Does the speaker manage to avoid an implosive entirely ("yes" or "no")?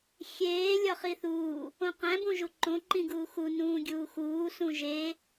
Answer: yes